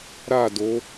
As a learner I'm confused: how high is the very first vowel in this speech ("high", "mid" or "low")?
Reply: low